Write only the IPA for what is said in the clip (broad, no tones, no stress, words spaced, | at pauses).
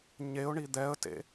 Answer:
ɲeʊ̯ɳi d̪ɛə̯tḛ